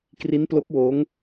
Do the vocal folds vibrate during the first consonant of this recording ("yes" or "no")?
no